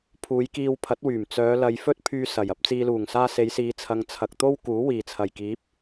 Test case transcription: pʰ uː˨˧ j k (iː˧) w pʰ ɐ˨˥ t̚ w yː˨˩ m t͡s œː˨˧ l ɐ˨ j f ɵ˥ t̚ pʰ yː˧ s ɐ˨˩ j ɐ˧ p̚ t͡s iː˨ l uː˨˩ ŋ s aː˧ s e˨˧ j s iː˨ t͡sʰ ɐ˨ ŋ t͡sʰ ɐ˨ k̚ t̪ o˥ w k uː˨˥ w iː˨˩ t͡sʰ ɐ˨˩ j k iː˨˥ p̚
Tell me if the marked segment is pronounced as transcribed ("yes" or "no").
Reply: yes